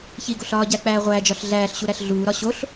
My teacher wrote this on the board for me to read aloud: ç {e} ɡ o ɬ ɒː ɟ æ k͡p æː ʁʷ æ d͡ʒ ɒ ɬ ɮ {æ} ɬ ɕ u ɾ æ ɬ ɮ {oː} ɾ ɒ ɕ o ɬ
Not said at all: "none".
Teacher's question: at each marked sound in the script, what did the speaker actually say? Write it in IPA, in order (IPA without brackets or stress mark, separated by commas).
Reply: i, æː, uː